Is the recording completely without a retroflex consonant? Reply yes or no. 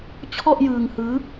yes